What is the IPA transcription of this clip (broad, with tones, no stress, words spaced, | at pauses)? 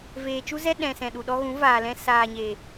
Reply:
veː˨t͡ʃu˦zɛ˦ ɗɛ̃˨sɛ̃˨ɗu˨ɗɔ˧ ɣũ˨˦vaː˨lɛ̃˧ saː˨ɲe˨